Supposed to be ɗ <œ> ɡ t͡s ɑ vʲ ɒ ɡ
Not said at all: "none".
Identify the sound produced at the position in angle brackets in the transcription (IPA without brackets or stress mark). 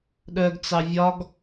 œ